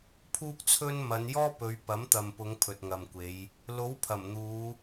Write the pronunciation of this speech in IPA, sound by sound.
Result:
pʰuː˥k̚t͡sʰɵ˥n mɐ˨˧njɔː˥pɵ˨˧ɥ pɐ˨˥mt̪ɐ˨mpʊ˨˧ŋ pʰɵ˨t̚ŋɐ˨mkʷe˨˧j | lo˨˥w pʰɐ˨˩mn̪uː˨˧

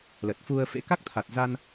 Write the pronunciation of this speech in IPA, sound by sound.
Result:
lə˨˩t̚fu˧ə̯fḛ˧˥ ka˦˥k̚t̪ʰa˨˩t̚za˧n

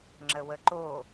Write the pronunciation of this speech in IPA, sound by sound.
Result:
ŋ͡ǁəwəǃo

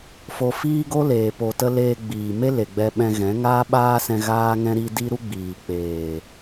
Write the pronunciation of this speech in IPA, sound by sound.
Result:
fo˧fiː˦ ɡo˦leː˨ po˨tə˧ leː˧ɡ͡biː˨me˦ le˨ɡ͡bɛ˧ɓɛ̃˧ɣɛ̃˨˦ ŋaː˦ɓaː˦sɛ̃˧ ɣaː˦ŋɛ̃˦ ɾi˧ di˦ɾu˦ɡ͡biː˨ k͡peː˨

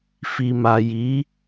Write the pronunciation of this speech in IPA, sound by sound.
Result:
fi˨ma˨ji˨˦

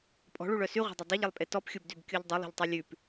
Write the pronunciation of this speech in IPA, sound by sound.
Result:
pʼɔ̤ɭuɭœ syʁʷɑ̤dˤɵ dˤoʎelˠpʼe tɔpxʲubdybkʲoʎ dˤulˠṳʎtˤe lʲʉp

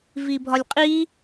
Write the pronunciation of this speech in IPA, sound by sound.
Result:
vibʱɒlʲqʼi

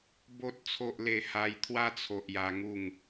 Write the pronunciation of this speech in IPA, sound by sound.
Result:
bo˨t̚t͡sʰo˨ʔle˨˩ ha˧j t̪ʰwa˧t͡sʰo˨ʔ ja˧ŋu˥˧ŋ

